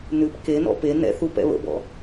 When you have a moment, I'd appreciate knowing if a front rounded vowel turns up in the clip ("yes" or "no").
no